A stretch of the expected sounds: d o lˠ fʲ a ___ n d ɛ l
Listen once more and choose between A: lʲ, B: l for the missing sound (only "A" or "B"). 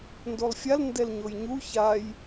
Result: B